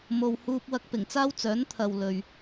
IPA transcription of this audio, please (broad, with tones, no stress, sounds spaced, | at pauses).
m o˧ w h uː˥ p̚ w ɐ˥ k̚ p ɪ˨˩ ŋ t͡s aː˥ w t͡s œː˨˥ n t̪ʰ ɐ˨ w l ɵ˨ ɥ